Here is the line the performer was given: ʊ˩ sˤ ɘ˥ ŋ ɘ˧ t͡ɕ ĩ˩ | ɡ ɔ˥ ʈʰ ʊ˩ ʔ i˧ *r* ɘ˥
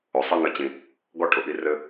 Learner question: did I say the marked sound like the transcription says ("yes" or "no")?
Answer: yes